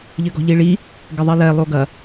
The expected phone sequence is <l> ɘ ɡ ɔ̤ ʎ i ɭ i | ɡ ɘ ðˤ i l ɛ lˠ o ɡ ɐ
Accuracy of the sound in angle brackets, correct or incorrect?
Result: incorrect